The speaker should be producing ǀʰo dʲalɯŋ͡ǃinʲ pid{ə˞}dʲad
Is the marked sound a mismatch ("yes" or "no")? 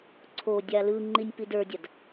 no